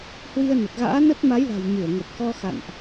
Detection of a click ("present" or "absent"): absent